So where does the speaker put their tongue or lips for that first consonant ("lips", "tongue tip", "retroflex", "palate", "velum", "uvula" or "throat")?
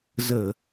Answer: tongue tip